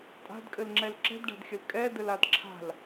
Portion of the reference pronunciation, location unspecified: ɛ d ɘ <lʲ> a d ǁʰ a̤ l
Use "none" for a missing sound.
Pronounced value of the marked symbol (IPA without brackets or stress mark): l